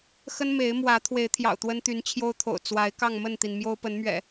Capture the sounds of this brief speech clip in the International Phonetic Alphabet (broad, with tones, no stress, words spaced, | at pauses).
xə˦nme˨˦ɪ̯mwä˨˦ t̪ʰwe˨˦ɪ̯t̪ʰjɑ̰˨˩ʊ̯ t̪wə˦nt̪y˨˦n t͡ɕʰjo˦ʊ̯t̪ʰo̰˨˩ʊ̯ t͡swa˨˦ɪ̯ kɑ˥˨ŋmə˥˨nt̪i˩n mjo˦ʊ̯pə˨˦nmɥɛ̰˨˩